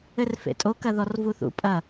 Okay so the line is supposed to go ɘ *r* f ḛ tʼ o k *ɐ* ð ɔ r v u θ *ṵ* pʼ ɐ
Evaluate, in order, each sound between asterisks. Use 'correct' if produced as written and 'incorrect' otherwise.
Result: correct, correct, correct

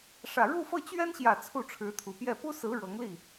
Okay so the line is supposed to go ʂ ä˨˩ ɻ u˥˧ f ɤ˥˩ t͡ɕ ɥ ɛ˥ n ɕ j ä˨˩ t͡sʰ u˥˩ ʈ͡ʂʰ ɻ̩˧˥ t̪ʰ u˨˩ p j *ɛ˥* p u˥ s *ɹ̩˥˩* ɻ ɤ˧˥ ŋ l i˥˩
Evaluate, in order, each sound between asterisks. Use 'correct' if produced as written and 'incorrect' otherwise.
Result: incorrect: ɛ˥˩, incorrect: ɹ̩˧˥

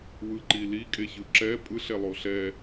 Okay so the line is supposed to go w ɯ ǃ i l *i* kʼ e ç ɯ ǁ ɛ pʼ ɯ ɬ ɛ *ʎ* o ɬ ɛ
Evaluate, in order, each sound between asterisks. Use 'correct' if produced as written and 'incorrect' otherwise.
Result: correct, incorrect: lˠ

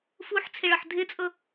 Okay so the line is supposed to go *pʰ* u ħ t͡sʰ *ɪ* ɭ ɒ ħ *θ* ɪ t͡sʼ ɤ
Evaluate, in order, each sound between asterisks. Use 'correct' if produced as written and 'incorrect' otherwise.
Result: incorrect: f, correct, incorrect: dʱ

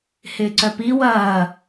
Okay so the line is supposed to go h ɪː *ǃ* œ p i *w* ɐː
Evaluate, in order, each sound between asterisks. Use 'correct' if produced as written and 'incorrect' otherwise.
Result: incorrect: ǀ, correct

